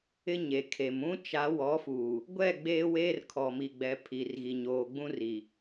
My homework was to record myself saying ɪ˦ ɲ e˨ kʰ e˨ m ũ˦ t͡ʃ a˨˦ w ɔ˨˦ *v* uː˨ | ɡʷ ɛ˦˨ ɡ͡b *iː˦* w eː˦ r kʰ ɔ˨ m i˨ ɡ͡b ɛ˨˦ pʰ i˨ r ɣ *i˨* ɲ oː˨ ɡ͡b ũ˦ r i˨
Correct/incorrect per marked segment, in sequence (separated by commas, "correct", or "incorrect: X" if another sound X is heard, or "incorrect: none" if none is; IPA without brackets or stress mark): incorrect: f, incorrect: eː˦, correct